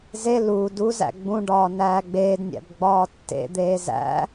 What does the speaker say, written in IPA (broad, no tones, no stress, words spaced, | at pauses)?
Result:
ze lu duzæ̰ ɡ͡bũɖɒː næːɡ͡beːdnʲæ̰b ɡ͡bɒːtːḛd̪eː zæ̰